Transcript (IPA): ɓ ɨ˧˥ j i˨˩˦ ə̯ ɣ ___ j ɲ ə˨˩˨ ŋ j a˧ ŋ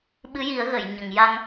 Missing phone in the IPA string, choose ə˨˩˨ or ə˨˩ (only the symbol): ə˨˩˨